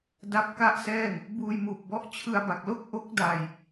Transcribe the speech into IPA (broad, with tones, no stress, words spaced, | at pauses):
da˥˩p̚ka˥˩ʔsɛː˥˩ŋ | buː˧jmuː˨˩p̚bɔ˦˥ʔ t͡ɕʰɯ˧a̯ba˨˩k̚lo˥˩k̚ ʔo˦˥k̚da˨˩j